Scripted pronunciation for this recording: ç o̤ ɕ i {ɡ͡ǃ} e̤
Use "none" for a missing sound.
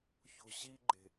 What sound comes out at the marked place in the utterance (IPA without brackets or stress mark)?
ɡ͡ǃ